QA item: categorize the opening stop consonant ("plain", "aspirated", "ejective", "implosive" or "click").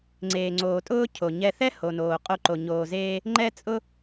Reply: click